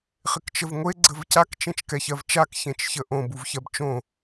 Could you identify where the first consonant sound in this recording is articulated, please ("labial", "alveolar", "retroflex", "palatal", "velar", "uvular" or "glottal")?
uvular